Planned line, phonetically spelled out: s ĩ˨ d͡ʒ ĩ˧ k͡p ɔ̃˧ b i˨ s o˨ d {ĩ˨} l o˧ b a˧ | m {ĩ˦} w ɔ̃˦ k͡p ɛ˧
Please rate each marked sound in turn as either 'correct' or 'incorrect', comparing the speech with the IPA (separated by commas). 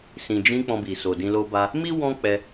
incorrect, incorrect